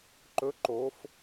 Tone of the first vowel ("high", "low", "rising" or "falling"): rising